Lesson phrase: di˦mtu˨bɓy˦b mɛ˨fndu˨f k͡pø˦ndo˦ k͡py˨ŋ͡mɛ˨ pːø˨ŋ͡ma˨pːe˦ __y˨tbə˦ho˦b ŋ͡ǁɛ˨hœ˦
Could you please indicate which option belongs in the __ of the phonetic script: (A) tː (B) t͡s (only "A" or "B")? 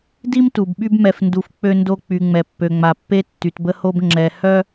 A